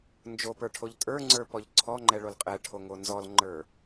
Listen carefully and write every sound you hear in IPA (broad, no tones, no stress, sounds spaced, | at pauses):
n d͡ʒ o p ə˞ ʈʰ o ʎ tʼ ə˞ ŋ͡ǀ ə˞ p ɔ ʎ ǀʰ ɔ ŋ͡ǃ ɛ ɭ o l qʼ ɛ ʈʰ o ŋ o n z ɔ l ŋ͡ǃ ə˞